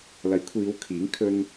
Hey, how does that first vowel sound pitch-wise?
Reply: rising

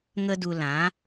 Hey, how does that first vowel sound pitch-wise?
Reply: high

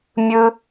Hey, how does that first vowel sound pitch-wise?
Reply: high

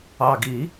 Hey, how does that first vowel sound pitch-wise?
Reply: low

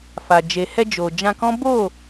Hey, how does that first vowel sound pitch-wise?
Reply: low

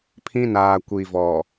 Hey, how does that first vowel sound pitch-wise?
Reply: high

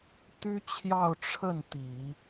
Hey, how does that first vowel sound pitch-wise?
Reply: high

